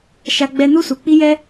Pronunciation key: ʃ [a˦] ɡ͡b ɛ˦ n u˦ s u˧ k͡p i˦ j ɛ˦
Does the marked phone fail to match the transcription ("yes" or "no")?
no